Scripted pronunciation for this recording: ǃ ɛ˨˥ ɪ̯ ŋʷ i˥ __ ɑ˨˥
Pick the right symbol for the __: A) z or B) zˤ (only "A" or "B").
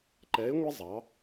B